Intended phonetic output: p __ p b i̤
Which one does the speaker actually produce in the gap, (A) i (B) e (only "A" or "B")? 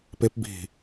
B